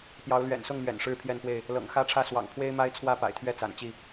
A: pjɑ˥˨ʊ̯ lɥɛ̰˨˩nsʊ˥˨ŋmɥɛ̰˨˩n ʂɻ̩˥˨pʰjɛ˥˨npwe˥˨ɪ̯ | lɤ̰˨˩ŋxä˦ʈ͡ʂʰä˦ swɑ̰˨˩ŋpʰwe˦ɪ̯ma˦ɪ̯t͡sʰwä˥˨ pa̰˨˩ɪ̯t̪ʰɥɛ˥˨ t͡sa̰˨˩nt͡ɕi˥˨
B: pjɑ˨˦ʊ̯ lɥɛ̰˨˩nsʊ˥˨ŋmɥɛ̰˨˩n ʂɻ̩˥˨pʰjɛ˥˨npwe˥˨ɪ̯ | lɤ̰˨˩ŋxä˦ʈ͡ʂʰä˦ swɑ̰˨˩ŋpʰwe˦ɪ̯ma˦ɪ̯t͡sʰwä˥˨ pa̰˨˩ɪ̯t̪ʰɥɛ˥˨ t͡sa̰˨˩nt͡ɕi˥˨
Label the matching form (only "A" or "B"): B